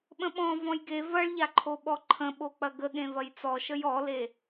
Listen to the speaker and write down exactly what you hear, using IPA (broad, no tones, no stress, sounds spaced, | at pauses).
ɓ ə̃ ɓ ɔ̃ v ɔ̃ j ɡ e v ɐ ɭ ʎ a ǃʰ o ɓ ɔ ǃʰ ə̃ ɓ o k͡p ɐ ɡ ə ɠ ẽ v ɐ j t͡s ɔ ʃ ə j ɔ l e